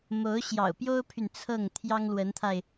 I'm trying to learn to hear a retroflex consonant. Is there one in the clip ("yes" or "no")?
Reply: no